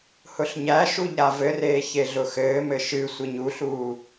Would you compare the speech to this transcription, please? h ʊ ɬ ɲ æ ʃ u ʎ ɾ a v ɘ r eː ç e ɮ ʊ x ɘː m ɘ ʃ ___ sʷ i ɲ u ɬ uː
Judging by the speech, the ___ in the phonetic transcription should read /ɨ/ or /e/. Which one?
ɨ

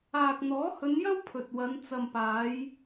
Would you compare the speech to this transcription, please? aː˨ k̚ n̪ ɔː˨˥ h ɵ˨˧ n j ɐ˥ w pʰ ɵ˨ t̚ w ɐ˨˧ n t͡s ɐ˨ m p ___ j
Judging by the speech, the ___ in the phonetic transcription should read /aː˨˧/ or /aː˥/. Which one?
aː˨˧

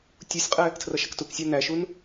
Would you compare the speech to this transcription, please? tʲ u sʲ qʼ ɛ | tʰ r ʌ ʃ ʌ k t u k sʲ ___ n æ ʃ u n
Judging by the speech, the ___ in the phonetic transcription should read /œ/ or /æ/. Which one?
æ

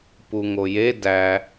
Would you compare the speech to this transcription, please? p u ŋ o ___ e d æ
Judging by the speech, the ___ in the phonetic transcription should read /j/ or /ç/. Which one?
j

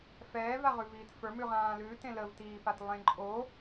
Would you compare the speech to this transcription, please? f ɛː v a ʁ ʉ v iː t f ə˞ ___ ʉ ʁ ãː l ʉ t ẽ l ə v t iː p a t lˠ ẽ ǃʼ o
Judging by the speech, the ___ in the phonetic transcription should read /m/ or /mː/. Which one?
m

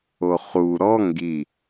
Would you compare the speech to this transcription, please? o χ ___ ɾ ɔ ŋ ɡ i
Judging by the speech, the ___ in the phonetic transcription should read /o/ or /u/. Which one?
u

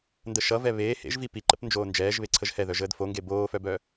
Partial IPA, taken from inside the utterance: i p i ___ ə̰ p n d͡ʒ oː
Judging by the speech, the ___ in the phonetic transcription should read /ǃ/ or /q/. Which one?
ǃ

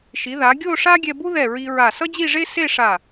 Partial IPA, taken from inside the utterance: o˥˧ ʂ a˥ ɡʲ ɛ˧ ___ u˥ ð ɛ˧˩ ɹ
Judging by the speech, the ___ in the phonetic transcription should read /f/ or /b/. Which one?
b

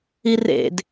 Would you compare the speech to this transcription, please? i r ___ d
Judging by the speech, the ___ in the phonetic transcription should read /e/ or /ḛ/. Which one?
ḛ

